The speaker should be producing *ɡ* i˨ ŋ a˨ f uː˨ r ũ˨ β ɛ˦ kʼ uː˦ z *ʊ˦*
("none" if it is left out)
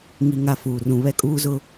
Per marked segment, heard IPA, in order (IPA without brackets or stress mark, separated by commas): ŋ, ʊ˦